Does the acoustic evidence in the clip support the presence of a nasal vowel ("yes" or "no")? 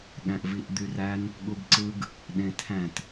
yes